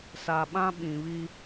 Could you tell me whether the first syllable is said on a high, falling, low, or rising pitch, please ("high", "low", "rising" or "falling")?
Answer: low